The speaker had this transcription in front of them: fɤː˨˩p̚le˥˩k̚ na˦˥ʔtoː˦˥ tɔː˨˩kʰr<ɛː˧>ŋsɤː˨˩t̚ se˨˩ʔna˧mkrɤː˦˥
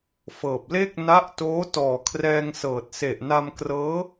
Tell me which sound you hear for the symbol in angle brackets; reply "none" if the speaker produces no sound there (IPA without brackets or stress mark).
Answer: ɛː˧